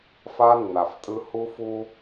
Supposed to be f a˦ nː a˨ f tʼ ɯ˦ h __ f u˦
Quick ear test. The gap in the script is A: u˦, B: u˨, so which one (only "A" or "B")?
A